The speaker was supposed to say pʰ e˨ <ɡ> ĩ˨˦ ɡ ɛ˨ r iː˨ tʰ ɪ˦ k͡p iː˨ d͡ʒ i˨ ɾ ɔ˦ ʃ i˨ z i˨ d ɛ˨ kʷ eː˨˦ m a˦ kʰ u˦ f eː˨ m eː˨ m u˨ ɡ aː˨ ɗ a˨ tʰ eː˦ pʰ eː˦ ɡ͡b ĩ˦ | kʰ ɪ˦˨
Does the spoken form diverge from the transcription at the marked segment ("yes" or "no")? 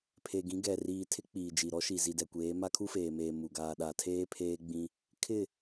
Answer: no